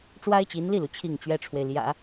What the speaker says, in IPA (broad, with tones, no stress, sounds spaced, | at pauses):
ʈ͡ʂ w a˥ ɪ̯ t͡ɕ i˧˥ n l i˥˩ l u˩ t͡ɕʰ i˥˩ ŋ t͡ɕ ɥ ɛ˥ ʈ͡ʂʰ w e˨ ɪ̯ l j ä̰˨˩˦